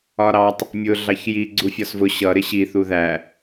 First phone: ɒ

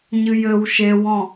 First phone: ɲ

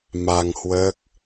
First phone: m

